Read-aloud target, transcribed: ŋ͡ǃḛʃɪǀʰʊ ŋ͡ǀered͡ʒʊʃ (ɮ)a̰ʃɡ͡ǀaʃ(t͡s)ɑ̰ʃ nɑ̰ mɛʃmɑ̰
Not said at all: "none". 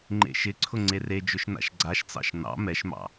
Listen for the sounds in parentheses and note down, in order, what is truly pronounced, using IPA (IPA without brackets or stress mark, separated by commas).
n, t͡s